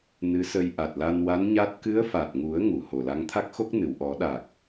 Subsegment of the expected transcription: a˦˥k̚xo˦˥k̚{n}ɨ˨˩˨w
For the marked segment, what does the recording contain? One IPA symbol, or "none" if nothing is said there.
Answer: n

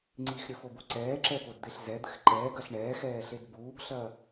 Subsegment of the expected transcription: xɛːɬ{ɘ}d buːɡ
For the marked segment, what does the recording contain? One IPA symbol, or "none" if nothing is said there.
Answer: e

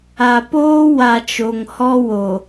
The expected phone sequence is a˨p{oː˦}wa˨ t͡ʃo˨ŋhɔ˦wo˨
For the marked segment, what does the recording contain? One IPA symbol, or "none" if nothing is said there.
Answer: oː˦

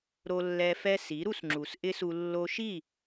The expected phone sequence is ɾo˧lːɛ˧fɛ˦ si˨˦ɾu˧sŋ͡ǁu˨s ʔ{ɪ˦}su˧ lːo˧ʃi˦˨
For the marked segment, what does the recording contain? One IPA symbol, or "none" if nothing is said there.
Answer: ɪ˦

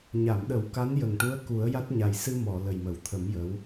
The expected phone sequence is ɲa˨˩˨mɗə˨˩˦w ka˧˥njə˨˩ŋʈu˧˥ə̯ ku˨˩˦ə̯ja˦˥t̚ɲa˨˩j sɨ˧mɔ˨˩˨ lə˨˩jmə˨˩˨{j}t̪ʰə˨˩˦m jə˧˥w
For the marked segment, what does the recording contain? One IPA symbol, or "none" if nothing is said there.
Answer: w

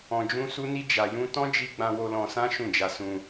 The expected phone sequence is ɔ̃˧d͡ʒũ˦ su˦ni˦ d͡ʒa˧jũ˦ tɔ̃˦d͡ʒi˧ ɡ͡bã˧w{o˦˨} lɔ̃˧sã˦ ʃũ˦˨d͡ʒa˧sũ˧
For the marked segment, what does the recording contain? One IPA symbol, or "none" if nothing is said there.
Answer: o˧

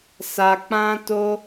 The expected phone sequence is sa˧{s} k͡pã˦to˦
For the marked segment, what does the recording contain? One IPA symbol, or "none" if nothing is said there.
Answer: none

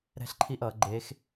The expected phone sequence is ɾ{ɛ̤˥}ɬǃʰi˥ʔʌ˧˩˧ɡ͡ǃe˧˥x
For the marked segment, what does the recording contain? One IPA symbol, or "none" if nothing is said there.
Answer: ɛ̤˥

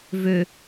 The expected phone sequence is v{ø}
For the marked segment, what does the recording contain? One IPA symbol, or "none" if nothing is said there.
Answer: ø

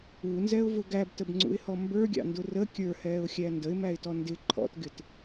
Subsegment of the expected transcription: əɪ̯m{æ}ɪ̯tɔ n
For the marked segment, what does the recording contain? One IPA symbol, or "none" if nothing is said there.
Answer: æ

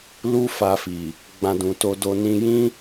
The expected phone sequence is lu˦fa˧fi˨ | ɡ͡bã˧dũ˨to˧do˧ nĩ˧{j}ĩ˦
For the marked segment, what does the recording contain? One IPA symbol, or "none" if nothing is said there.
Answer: j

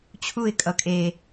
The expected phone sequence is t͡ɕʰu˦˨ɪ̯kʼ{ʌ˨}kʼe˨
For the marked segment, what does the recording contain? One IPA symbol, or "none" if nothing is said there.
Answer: ʌ˨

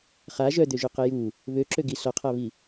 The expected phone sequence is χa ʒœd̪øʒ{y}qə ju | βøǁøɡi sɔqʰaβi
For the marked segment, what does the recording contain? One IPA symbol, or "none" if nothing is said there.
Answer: y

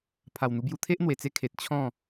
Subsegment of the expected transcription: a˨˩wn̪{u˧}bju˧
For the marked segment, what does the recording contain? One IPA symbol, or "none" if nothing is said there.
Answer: u˧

